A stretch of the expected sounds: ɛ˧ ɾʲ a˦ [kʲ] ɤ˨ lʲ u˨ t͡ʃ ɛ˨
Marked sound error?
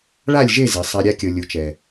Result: no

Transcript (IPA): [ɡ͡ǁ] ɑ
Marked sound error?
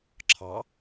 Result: yes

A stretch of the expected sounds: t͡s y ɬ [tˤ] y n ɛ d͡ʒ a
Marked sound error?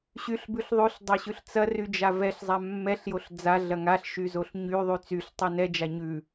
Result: no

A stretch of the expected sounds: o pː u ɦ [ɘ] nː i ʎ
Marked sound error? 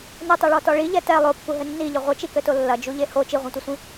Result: no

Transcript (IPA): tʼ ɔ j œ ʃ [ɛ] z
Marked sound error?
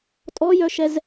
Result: no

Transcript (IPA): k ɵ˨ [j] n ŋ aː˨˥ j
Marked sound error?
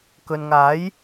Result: yes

